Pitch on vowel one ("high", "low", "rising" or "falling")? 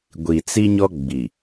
low